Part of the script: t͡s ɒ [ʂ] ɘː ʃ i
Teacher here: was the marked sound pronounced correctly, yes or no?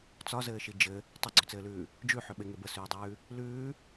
no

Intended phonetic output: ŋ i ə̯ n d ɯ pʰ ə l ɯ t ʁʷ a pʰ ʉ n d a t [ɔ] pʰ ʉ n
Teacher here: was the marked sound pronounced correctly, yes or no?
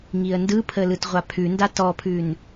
yes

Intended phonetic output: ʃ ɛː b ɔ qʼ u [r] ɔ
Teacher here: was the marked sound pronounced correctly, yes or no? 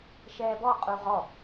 no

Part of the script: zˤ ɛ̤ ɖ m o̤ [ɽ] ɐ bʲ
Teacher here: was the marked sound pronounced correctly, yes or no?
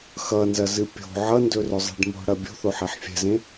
yes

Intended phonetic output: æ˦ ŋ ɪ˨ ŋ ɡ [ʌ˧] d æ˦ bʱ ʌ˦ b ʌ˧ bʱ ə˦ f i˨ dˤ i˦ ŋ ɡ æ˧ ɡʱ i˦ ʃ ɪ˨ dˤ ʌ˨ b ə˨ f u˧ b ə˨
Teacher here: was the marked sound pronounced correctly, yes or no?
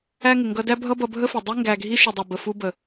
yes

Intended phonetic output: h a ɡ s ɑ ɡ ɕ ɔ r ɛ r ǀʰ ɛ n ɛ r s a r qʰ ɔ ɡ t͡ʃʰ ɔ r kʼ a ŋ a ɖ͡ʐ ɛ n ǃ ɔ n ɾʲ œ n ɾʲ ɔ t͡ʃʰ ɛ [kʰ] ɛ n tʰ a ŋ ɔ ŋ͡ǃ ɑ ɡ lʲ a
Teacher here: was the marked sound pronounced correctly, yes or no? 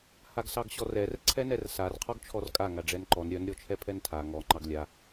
no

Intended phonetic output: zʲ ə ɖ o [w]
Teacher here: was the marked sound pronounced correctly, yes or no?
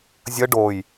no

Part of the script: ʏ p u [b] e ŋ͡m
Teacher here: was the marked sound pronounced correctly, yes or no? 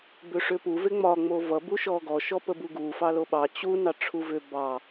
no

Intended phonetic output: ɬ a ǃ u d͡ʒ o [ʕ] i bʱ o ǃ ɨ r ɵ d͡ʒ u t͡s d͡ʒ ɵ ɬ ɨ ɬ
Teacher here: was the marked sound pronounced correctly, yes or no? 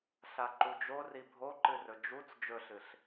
no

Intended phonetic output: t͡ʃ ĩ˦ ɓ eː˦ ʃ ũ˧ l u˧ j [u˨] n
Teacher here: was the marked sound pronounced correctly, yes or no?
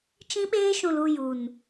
yes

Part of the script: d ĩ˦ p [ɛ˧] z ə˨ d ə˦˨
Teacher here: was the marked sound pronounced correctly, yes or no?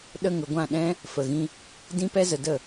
no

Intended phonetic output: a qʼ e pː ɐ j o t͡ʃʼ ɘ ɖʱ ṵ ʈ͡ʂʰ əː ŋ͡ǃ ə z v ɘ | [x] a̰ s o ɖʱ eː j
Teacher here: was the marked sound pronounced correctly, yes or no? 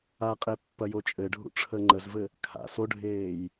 no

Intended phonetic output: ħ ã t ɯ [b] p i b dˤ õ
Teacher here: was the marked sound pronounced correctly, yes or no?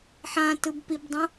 yes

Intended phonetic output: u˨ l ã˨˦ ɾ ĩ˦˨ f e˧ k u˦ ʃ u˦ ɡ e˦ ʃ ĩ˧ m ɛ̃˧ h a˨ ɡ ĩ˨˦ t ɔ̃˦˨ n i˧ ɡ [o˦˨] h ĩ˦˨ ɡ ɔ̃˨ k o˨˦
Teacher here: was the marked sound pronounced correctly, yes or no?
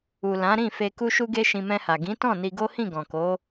no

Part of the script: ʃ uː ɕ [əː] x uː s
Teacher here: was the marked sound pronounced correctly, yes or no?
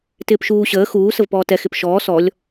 yes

